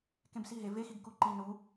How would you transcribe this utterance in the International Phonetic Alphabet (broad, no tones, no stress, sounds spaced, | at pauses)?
k ẽ b s i ɦ e v e x i ɡ k u ǃ i n u